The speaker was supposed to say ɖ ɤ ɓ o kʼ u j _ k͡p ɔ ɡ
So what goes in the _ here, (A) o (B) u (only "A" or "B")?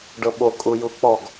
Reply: B